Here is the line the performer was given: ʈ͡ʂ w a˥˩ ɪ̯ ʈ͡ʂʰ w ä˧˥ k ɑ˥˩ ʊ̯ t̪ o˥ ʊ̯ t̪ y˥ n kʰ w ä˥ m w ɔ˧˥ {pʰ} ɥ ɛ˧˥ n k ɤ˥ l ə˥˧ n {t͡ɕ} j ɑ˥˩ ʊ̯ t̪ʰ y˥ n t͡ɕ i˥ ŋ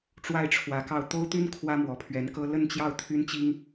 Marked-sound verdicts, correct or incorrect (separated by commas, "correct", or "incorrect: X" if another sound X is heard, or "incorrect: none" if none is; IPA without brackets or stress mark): correct, correct